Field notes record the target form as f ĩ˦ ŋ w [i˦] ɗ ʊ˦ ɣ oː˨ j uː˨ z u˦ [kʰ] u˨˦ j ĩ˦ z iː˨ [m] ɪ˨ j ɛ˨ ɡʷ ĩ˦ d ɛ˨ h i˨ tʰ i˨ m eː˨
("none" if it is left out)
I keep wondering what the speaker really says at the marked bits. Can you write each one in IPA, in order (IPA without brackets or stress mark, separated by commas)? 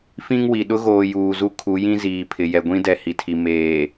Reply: i˨, kʰ, pʰ